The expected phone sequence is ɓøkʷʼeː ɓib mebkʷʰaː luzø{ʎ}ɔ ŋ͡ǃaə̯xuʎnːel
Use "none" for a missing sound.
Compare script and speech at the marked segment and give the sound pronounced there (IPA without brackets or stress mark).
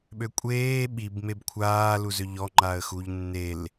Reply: ʎ